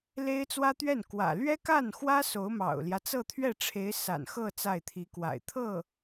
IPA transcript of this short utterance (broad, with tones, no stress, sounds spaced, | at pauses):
l e˥ ɪ̯ t͡s w ä˥ t̪ ɥ ɛ˥˩ n k w ä̰˨˩ l ɥ ɛ˥ k a˥˩ n x w ä˥ s o˧˥ ʊ̯ m ɑ̰˨˩ ʊ̯ l j ä˦ t͡s ɤ˥˧ t̪ʰ ɥ ɛ˥˩ ʈ͡ʂʰ e˧˥ ɪ̯ s a̰˨˩ n x ɤ˥˧ t͡s a˥˩ ɪ̯ t̪ʰ i˧˥ k w a̰˨˩ ɪ̯ t̪ʰ ɤ˥˩